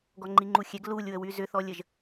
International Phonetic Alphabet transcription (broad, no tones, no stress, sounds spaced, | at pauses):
ɡ ɔ ŋ͡ǃ i ŋ͡ǃ u xʲ ɛ ɡ l u lʲ w ə w y z ʏ θ ɔ lʲ ə ʒ